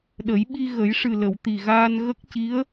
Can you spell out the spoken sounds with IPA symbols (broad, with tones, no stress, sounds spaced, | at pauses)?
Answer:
ɗ ə˨˩˦ j ɓ i˧ ɣ ə˨˩˦ j ʂ ɨ˨˩ l ə˨˩˨ w t̪ i˨˩ ɣ aː˧ n ɣ ə˦˥ k̚ c i˧˥ ə̯